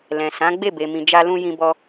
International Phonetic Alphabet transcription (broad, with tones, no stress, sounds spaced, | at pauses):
l ɛ̃˨ s ã˨˦ ɡ͡b e˦˨ b e˨ m ĩ˨ d͡ʒ a˧ l ũ˧ j ĩ˧ b ɔ˧